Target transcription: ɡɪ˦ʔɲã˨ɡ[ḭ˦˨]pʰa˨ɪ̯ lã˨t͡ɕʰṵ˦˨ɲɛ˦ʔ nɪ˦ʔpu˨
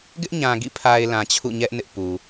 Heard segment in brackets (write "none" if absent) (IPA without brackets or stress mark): ḭ˦˨